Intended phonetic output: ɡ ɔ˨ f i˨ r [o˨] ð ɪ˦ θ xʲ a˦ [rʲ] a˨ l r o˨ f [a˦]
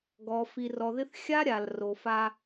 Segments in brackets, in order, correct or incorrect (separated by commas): incorrect, incorrect, correct